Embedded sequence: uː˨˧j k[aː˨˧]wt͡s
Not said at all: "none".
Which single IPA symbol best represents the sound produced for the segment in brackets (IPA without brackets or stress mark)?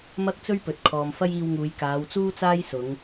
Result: aː˨˧